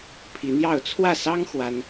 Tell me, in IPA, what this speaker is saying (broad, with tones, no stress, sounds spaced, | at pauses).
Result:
pʰ i˧˥ n̪ j ɑ˥˧ ʊ̯ t͡sʰ w ä˥˩ s ɑ˥ ŋ x w a˥ n